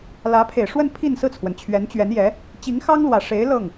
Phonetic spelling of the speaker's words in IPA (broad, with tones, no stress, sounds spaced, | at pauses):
l ä˧˥ pʰ e˨˩ ɪ̯ ʂ w ə˥˧ n pʰ i˥˧ n s ɹ̩˥˩ t͡sʰ w ə˩ n t͡ɕʰ ɥ ɛ˧˥ n t͡ɕ ɥ ɛ˧˥ n j ɛ˧˥ | t͡ɕ i˧˥ ŋ x ɑ˥ ŋ l w ä˨˩ ʂ e˧˥ ɪ̯ l ɤ˥˩ ŋ